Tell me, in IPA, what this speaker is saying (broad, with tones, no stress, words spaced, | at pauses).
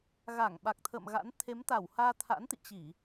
ɣa˧˩ŋ ɓa˨˩k̚t̪ʰə̰ː˧˨mɣa̰˧˥n t̪ʰe˨˦mt̪a˧˩w haː˧t̪ʰa̰˧˥nt̪ḭ˧˨ t͡ɕi˧˩˨